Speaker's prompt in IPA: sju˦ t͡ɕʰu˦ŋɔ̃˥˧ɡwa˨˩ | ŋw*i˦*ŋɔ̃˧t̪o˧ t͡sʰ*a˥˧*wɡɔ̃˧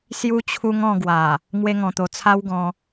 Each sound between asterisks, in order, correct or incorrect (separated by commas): incorrect, incorrect